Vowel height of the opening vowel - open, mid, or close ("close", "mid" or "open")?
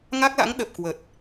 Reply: open